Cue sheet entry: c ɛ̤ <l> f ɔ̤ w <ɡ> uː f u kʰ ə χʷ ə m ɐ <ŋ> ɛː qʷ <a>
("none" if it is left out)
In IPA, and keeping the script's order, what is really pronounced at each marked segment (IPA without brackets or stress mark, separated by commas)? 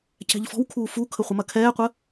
ʎ, kʰ, kʰ, ə